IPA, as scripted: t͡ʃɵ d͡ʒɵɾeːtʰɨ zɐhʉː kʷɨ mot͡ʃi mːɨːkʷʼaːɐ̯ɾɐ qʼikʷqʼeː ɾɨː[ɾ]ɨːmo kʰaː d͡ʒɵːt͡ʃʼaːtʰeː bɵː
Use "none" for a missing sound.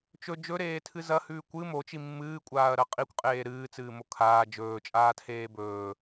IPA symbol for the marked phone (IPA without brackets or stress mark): t͡s